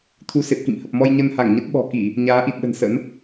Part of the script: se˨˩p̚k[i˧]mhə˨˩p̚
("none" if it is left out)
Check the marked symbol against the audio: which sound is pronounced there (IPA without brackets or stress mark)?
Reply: ḭ˧˨